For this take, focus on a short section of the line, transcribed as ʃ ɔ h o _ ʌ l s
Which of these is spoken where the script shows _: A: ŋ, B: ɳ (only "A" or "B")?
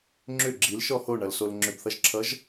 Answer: B